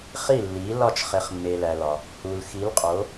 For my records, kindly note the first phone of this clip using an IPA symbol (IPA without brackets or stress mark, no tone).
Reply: χ